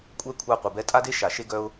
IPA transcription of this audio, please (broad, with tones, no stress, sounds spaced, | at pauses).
kʷʼ ɛ˦ kʷʰ a˦ qʷ e˨˩ b ɛ˦ tʼ a˦ d e˦ ʃ a˨˩ ʃ e˦ ɡ œ˦ ʊ̯